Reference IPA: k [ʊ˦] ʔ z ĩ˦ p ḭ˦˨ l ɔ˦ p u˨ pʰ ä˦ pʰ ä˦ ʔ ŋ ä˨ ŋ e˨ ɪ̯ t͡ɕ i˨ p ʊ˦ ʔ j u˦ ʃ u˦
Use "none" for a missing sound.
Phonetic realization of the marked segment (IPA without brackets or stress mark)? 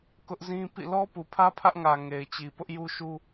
ʊ˦